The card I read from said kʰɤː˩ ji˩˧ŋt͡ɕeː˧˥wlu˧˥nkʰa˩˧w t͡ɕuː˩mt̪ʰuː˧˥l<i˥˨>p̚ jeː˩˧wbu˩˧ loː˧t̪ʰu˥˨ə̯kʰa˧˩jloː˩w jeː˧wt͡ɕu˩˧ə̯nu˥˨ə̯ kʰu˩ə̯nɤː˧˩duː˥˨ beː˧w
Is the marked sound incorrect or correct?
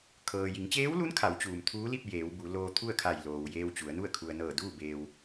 correct